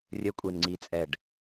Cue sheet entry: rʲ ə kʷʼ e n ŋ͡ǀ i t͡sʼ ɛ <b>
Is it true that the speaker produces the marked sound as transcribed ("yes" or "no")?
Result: no